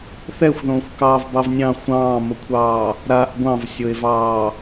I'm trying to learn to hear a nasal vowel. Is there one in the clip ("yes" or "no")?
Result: yes